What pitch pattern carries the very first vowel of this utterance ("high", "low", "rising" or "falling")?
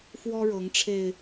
high